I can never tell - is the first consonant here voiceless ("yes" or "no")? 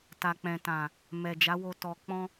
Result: yes